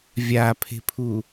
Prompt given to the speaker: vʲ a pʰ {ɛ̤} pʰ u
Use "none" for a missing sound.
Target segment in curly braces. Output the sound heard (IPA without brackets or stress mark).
e̤